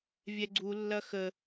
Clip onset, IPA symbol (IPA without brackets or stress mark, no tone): vʲ